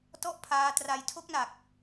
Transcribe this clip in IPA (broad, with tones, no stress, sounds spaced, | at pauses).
t ɔ˥˩ ʔ pʰ aː˧ t r a˧ j tʰ o˦˥ k̚ n a˨˩ k̚